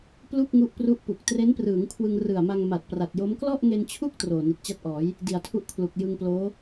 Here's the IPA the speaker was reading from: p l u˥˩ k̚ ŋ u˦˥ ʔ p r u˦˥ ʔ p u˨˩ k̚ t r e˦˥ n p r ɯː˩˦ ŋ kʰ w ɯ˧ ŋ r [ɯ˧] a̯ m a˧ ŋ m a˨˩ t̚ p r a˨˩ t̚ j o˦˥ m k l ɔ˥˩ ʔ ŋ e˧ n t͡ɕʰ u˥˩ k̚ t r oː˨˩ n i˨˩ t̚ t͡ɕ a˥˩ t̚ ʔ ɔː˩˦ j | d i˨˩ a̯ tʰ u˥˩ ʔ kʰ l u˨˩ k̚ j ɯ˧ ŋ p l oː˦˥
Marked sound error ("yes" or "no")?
yes